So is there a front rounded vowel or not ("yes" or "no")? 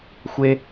no